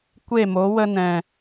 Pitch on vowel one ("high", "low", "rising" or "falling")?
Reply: falling